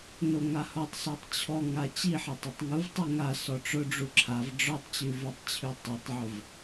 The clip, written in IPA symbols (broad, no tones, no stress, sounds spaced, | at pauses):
n o ŋ a h ɔ tˤ s o tˤ t͡ɕʰ ɔ ŋ a t͡ɕ i ħ a tˤ o tˤ ŋ u v tˤ i ŋ a s ɔ ʈ͡ʂ ʊ ɖ͡ʐ u ǁʰ a v ɖ͡ʐ ɔ tˤ t͡ɕ ʉ v ʉ tˤ t͡ɕʰ ʉ tˤ a tˤ ʕ ʊ v